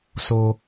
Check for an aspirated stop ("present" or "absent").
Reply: absent